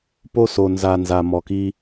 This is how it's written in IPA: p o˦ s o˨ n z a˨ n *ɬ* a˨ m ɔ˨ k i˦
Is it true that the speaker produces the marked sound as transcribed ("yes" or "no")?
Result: no